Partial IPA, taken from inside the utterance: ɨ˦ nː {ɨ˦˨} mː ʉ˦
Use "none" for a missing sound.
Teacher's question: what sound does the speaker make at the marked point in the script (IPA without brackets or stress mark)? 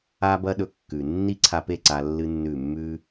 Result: ʉ˦˨